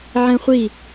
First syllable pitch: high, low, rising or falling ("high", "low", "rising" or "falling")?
high